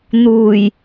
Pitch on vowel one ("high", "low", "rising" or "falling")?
low